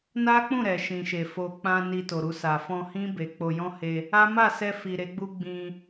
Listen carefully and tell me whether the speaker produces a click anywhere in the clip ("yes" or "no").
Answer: no